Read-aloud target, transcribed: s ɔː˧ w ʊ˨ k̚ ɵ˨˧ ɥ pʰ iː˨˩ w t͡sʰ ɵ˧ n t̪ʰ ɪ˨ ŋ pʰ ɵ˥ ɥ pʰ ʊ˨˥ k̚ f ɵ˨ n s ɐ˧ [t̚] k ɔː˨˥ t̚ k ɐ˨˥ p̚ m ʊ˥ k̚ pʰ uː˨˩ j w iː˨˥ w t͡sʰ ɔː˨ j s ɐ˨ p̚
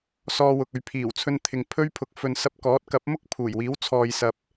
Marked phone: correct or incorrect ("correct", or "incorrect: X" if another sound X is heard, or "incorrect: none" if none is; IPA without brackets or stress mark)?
incorrect: p̚